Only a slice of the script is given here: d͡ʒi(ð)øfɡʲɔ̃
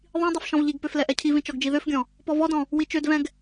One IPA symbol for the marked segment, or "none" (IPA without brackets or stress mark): ð